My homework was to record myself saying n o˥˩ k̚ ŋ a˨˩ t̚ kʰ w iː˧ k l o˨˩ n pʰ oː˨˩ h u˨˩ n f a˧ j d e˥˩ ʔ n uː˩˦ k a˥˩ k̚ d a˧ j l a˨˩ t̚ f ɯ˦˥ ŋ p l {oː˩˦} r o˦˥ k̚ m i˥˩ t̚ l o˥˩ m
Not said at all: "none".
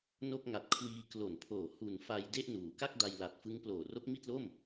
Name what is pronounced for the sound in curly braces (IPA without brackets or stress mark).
oː˨˩